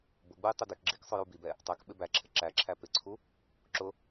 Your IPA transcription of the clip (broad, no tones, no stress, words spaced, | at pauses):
bʊɡ͡buj tˤɪdɪkɡ͡ǁik sˤʊjubibɛ | tˤæk ɓɪbæǁʰɪ ǁæǁʰæ pɪǀʰu | ǁʊ